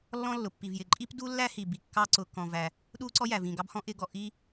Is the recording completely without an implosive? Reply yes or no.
no